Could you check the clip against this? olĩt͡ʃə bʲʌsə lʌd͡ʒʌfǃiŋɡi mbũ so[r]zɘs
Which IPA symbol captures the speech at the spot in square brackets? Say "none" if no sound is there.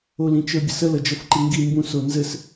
n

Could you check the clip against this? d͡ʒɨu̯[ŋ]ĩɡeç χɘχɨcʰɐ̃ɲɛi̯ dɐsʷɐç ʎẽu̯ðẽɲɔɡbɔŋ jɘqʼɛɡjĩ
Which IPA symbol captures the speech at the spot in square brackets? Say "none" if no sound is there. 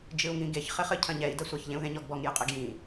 ŋ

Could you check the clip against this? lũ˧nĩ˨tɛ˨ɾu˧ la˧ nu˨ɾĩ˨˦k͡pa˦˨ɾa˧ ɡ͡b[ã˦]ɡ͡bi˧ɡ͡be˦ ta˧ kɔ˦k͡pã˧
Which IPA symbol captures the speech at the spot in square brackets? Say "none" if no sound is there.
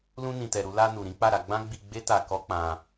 ã˦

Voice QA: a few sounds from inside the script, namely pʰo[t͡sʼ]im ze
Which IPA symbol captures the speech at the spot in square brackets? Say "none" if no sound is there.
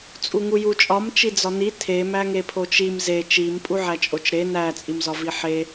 t͡ʃ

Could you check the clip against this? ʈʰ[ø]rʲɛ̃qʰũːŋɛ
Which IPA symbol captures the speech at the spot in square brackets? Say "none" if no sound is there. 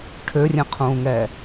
ø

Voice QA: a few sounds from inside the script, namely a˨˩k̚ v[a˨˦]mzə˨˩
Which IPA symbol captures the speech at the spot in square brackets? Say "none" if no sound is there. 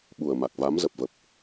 a˨˦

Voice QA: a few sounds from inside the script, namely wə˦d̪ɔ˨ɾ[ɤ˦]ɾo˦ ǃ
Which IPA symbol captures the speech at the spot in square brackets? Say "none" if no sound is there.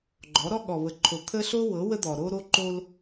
o˦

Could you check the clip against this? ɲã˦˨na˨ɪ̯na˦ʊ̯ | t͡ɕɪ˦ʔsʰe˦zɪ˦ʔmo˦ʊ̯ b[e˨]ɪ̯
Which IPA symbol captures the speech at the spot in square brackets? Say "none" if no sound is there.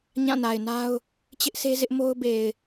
e˨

